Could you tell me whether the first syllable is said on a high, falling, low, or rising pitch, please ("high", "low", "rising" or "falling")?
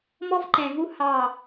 high